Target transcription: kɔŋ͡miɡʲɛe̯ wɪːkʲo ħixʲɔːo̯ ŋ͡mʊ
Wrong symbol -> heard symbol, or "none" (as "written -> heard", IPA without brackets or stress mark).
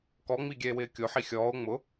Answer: none